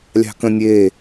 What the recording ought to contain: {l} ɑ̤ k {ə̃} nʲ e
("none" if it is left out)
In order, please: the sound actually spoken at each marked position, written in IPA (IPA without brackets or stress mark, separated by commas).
lʲ, ə̃